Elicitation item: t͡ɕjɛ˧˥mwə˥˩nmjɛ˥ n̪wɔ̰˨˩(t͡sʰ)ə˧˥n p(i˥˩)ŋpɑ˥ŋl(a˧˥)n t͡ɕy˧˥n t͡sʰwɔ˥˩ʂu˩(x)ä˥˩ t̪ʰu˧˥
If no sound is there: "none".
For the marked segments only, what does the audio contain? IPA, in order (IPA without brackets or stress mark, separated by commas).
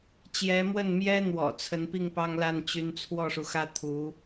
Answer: t͡sʰ, i˥˩, a˥˩, x